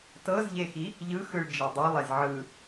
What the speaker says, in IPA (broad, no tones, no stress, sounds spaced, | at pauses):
t ɤ z ʎ e x i | ʎ ɯ x ɯ ɭ d͡ʒ e dˤ u lˠ e z ʕ ɯ